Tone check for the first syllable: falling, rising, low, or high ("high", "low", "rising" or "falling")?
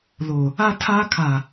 low